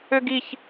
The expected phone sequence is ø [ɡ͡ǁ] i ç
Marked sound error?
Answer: yes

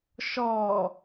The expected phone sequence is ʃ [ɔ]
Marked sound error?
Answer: no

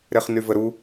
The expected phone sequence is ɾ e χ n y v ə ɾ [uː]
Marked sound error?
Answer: yes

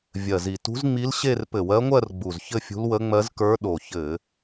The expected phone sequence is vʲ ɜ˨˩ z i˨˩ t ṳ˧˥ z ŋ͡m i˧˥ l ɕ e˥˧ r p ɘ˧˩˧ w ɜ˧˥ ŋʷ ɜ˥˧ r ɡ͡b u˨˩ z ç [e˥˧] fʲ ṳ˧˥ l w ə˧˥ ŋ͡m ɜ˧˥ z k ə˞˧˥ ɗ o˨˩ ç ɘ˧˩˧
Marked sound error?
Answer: yes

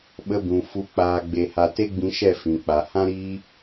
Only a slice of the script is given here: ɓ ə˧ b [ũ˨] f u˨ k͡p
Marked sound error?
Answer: no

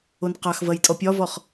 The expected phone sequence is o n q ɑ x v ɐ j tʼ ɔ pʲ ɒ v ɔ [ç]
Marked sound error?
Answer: yes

